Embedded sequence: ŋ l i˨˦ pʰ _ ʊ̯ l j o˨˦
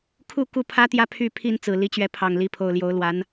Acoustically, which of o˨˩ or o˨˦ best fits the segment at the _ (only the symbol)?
o˨˩